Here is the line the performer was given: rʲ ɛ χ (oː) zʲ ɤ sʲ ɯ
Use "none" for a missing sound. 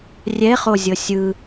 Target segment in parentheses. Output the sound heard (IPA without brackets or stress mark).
o